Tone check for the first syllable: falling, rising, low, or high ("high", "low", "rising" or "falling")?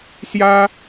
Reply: high